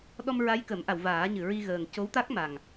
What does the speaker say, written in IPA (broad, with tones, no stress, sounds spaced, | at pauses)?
ɗ ɔ˧ m ɹ a˧˥ j k ə˨˩˦ m ʔ a˨˩˨ w v aː˨˩˦ ɲ ɨ˨˩˨ ɹ i˧ ɣ əː˨˩ ŋ c o˧˥ w t̪ a˦˥ k̚ m a˨˩ ŋ